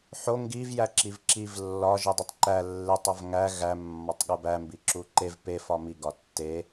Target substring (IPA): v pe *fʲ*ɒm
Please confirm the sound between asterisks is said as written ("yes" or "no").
no